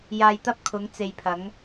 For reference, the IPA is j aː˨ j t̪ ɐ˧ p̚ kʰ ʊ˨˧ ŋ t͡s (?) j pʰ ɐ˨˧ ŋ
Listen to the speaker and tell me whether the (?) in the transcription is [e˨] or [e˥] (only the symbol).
e˨